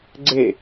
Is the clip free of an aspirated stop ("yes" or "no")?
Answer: yes